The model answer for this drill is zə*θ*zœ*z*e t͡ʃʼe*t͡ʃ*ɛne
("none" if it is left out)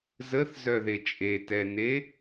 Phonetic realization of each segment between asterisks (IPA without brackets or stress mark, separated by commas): θ, ð, t